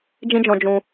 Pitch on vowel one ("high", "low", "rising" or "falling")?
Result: high